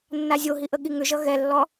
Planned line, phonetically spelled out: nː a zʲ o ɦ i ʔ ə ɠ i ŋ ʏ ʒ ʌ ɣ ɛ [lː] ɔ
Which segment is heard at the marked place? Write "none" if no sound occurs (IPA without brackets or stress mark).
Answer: lː